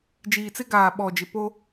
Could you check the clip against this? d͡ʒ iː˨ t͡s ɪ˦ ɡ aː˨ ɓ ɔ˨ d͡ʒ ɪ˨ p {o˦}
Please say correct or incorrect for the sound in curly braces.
correct